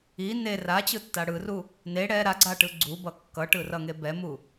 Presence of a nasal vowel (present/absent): absent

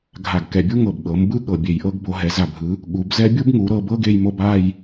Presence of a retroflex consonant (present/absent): absent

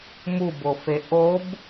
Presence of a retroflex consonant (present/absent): absent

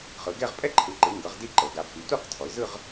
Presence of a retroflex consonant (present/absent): absent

